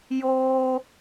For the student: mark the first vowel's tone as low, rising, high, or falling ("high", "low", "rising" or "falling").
high